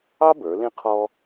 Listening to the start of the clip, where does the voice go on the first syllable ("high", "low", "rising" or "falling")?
high